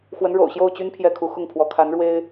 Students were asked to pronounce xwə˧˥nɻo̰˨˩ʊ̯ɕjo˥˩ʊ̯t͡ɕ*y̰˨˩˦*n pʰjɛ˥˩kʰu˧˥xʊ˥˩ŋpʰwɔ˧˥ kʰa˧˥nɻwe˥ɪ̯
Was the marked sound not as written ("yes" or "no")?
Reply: yes